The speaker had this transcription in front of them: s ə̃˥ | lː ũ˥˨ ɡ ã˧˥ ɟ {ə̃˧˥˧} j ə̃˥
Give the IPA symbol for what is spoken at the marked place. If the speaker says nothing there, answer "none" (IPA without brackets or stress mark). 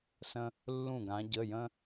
ə˧˥˧